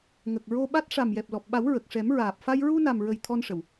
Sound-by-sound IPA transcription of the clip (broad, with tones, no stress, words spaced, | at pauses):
ŋə˨˩k̚ ɹo˧ɓa˦˥t̚ ʂa˨˩mjɛ˨˩p̚lɔ˨˩p̚ɓa˨˩˦w ɹə˨˩k̚ʂɛ˨˩˦mɹaː˨˩p̚fa˧j ɹu˧na˨˩mɹə˨˩j t̪ʰɔ˧nʂə˨˩˨w